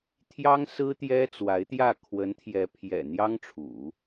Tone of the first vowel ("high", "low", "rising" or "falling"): high